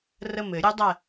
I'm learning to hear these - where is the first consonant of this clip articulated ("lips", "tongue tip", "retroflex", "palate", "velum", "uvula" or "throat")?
tongue tip